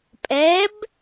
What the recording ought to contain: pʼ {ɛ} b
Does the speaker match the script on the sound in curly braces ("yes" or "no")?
yes